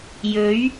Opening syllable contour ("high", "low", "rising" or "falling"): rising